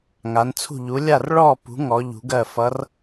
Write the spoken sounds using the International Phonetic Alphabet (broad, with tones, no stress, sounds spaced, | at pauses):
ŋ a˨˥ n t͡sʰ ṳ˥˨ ʎ u˨˥ lʲ a˥˨ r ɭ ɔ˥˨ p ṳ˨˥ ŋ ɔ˨˥ ʎ ṳ˨˥ ɡ ɜ˥˨ f ʌ˨˥ r